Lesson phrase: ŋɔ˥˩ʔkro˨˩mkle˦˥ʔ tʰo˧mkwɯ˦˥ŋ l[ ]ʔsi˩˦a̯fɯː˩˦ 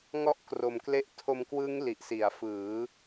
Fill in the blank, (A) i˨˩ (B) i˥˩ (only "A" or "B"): A